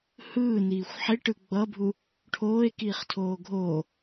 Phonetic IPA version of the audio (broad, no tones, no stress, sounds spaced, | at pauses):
h ɯː n iː xʷ ħ e ʈ ɯ ɡ͡b ʌ bʱ u | ʈʰ oː e̯ k iː χ tʰ oː ɡʱ o